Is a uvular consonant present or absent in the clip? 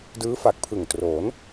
absent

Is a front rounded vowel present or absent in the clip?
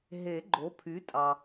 present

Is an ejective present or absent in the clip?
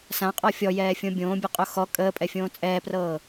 present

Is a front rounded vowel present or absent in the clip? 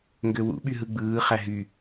present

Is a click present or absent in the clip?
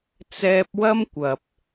absent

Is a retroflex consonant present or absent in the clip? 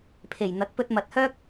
absent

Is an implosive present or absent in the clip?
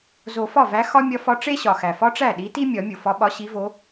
present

